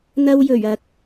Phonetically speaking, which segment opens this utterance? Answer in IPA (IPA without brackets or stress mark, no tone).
n̪